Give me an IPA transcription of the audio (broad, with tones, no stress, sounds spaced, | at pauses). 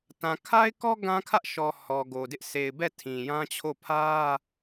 t ã˨ kʰ a˦ ɪ̯ k ɔ˦ ɡ ã˦ kʰ ä˦ ʔ ʃ ɔ˨ h ɔ˨ ɡ o˨ d ɪ˦ ʔ s e˨ ɪ̯ b ɛ˦˨ tʰ ĩ˨ j ã˦ t͡ɕʰ o˦˨ pʰ ä˦